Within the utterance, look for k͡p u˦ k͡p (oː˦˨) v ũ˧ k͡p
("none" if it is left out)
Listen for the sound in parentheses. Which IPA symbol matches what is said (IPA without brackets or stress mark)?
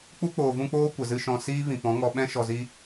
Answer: oː˨